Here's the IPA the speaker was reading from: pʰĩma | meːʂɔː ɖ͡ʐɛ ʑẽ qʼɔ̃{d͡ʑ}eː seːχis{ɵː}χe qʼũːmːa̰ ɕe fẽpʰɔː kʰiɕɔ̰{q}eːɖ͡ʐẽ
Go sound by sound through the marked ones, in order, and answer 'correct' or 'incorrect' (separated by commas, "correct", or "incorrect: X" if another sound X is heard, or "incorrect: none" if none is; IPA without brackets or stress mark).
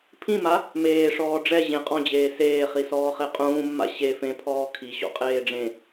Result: correct, incorrect: ɔː, incorrect: qʼ